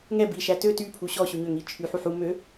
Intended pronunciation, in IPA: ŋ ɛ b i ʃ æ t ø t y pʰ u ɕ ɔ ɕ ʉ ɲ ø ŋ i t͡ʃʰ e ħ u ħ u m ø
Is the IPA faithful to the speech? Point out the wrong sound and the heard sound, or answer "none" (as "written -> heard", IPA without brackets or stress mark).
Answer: e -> y